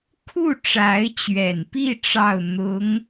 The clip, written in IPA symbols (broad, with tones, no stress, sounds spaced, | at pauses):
kʰ u˥˩ ʈ͡ʂ a˧˥ ɪ̯ t͡ɕ ɥ ɛ˨˩ n p i˥˧ ʈ͡ʂ ɑ˥˩ ʊ̯ n̪ ʊ˧˥ ŋ